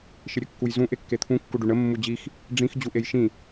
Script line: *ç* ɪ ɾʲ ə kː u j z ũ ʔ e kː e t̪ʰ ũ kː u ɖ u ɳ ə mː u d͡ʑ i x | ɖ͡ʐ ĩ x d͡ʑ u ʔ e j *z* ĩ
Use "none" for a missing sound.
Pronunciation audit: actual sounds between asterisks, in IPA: ʃ, ʃ

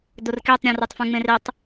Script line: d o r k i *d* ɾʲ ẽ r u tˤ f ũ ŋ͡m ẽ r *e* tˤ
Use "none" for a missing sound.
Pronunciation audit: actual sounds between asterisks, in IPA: tˤ, e

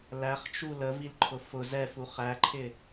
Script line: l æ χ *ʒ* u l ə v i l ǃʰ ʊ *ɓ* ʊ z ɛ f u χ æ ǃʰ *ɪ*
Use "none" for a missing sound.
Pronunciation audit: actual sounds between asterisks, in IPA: t͡ʃ, f, ɪ

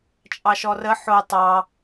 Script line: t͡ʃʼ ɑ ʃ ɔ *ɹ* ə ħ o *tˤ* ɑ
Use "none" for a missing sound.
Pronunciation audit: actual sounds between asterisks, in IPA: r, tˤ

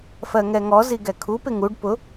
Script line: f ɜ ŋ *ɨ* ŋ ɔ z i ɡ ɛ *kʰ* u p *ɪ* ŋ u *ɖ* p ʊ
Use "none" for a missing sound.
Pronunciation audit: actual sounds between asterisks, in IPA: ɛ, kʰ, ɪ, ɖ

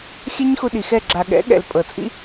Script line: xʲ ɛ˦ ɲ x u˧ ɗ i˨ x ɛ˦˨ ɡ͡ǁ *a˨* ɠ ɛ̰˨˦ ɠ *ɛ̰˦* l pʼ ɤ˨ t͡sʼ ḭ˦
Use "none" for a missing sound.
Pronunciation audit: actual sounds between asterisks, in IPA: a˨, ɛ̰˨

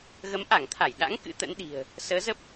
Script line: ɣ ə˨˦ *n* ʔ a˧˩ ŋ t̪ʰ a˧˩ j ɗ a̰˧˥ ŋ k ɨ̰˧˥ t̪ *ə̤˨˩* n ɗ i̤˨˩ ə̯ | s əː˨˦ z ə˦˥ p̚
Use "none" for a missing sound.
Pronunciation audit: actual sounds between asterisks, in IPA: m, ə̰˧˥

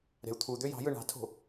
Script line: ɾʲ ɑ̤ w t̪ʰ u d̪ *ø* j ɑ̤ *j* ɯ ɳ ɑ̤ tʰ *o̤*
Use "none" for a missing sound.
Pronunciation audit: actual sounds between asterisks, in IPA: ø, j, o̤

